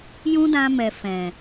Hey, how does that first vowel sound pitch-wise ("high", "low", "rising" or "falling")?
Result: high